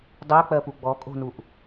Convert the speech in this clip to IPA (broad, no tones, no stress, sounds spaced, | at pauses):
dˤ ɜ k͡p ɜ p u ɡ͡b ɔ kʼ o̤ n u ʔ